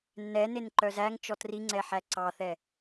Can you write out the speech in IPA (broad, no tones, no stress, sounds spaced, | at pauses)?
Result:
nː ɛ n e n ǃ œ z æ ŋ t͡ʃ ɔ t r i ŋ͡ǀ ɛ ħ æ ǀ ɑ θ ɛ